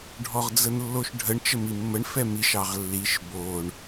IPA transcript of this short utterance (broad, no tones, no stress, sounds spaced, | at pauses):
ɖʱ ɔ ʁ d͡z ə n lː o ʃ ɖʱ ə ɳ t͡ʃ ə m i mː ə ɳ f ɛ m i ʃ ɑ ʁ lː i ʃ b o ɳ